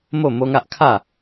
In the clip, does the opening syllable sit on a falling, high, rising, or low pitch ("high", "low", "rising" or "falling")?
falling